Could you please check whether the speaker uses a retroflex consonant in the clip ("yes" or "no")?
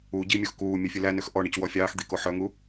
yes